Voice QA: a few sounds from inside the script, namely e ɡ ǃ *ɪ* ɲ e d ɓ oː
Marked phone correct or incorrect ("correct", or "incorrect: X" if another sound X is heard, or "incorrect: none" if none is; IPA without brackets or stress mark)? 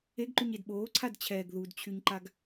incorrect: y